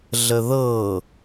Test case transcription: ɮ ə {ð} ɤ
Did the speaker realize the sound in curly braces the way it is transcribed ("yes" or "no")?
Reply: yes